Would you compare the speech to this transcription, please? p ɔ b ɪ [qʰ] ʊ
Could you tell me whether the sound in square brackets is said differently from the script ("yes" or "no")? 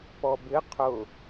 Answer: no